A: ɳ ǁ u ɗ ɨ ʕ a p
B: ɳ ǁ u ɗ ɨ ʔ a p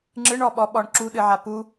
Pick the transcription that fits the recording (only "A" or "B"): A